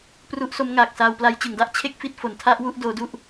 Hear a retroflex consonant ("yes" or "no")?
no